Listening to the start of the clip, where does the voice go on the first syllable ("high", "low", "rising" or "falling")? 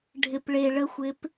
low